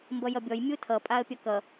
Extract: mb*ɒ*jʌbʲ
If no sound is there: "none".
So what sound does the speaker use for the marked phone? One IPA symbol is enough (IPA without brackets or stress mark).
ʌ